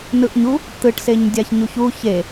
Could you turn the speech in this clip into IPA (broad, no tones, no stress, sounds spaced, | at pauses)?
n ɯ ʔ ɲ u | t̪ ɯ ʈ s e ɲ dʲ a ç ɲ u ç u ç e